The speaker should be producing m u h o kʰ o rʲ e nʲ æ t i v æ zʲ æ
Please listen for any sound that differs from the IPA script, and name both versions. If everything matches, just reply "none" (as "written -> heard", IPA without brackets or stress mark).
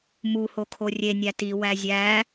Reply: v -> w